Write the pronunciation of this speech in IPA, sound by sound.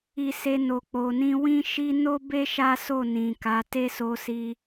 i˧ s e˧ n o˨ k͡p o˨ n ĩ˧ w ĩ˦ ʃ i˦ n o˦ b e˦ ʃ a˦ s o˦˨ n ĩ˨ k a˨˦ t e˦ s o˧ s i˧

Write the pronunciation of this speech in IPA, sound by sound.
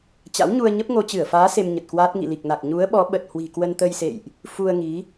t͡ɕ a̰˧˥ w ɲ u˧ ə̯ ɲ ə˦˥ p̚ ŋ o˧ t͡ɕ ɨ˧˩ ə̯ f aː˨˦ s e˧ m ɲ ə˨˩ t̚ k w aː˦˥ t̚ ŋ ḭ˧˨ l i˨˩ k̚ n a˨˩ k̚ ɲ u˨˦ ə̯ ɓ ɔ˨˦ ɓ ə˨˩ t̚ h w i̤˨˩ k w ə˧ n t̪ ə˧ j s ḛ˧˨ j ʔ | f u˧ ə̯ ŋ i˨˦

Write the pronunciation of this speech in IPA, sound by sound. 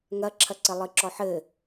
ŋ ɐ ǁʰ ɐ ǀ ɘ lˠ ɨ ǁ ɔ ħ ɘ

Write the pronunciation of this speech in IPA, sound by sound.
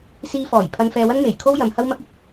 s iː˧ f ɔː˨˩ j pʰ ɐ˧ n f ɛː˧ w ɐ˥ n m e˨˩ j kʰ o˥ w j ɐ˨˧ m h ɐ˥ w m ɐ˥ k̚ ɪ˥ k̚

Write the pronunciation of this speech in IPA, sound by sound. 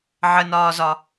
ʕ ə n ɒː z ɒ

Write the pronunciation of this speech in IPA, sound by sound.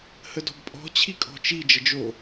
h ə d ɔ̤ b pʼ ɔ̤ t͡ɕʰ i kʼ ɔ̤ t͡ʃ i d͡ʒ ə d͡ʒ o

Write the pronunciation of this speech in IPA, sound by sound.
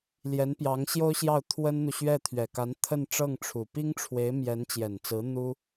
l j ɛ˧˥ n p j ɑ˧˥ ŋ ɕ j o˥ ʊ̯ ɕ j ɑ˥˩ ʊ̯ t̪ʰ w ə˥ n n̪ u˨ ɕ ɥ ɛ˥˩ t̪ʰ ɥ ɛ˨˩ k a˧˥ n t̪ʰ ə˥˧ n ʈ͡ʂ ɤ˥˩ ŋ ʈ͡ʂʰ u˨˩ p i˥ ŋ ʈ͡ʂʰ w e˧˥ ɪ̯ m j ɛ˧˥ n t͡ɕ j ɛ˨˩ n t͡s ɹ̩˧˥ n̪ u˥

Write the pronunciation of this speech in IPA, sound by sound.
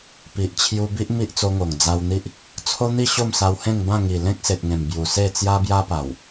p i˨ ʔ t͡ɕʰ j u˧ b i˦ ʔ m i˦ ʔ t͡s o˧ ŋ o˨˩ ŋ d͡z a˧ w n̪ i˦ ʔ | t͡sʰ o˦ n̪ i˥˧ ɕ o˥˧ m s a˧ w h ẽ˥˧ ŋ b ã˥˧ ŋ i˨˩ l ẽ˦ k̚ s e˨ t̚ ŋ ẽ˨˩ m b j u˨˩ s e˥˧ t͡s j a˦ b j a˦ p a˨˩ w

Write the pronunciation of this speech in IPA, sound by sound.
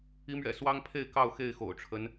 i˨˦ m ɥ ɛ̰˨˩ s w ɑ˦ ŋ pʰ e˥˨ ɪ̯ k ɑ˥˨ ʊ̯ x e˥˨ ɪ̯ x o̰˨˩ ʊ̯ ʈ͡ʂʰ ə˨˦ n

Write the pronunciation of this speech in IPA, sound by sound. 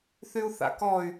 θ y u̯ θ a̰ k ɔ y̯

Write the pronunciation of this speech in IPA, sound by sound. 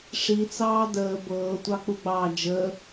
ʂ i t͡s ɑː d əː b ɤː tʷ ɑ k͡p u ɡ͡b ɑː d͡ʒ əː

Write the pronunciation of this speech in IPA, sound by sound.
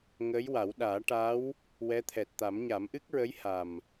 ŋ əː˧˥ j w a˨˩˦ w ɗ aː˨˩˦ ʈ a˧˥ w | w ɛ˧˥ t̪ʰ ɛ˨˩ t̚ t̪ a˨˩˦ m ɲ a˨˩˦ m ʔ ɨ˦˥ k̚ ɹ ə˧˥ j h a˨˩ m

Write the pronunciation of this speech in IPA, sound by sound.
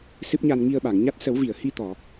s ɨ˦˥ p̚ ɲ a˧ n ŋ i˧ ə̯ ɓ a˨˩˨ ŋ ɲ a˦˥ t̚ s ə˨˩˦ w v i˨˩˨ ə̯ h i˧ t̪ ɔ˨˩˨

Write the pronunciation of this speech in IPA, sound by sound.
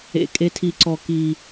ḛ˧ kʼ e˧˥ tʰ i˧ ǀ ɔ˧ k i˧

